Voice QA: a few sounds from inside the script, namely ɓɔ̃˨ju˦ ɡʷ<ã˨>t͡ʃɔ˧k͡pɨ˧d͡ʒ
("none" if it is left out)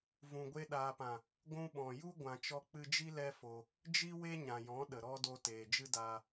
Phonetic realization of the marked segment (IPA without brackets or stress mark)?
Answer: ã˨